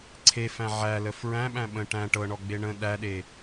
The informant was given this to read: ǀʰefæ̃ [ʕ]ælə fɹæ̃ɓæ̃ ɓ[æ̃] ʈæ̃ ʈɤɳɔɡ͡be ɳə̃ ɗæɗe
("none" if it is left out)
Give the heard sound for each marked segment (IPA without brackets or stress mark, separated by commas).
ʕ, ə̃